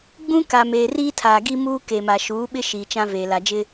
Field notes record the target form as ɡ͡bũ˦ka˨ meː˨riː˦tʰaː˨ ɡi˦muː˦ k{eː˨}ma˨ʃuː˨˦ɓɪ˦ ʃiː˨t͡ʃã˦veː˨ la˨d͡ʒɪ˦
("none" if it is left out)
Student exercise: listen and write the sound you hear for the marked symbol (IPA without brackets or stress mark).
e˨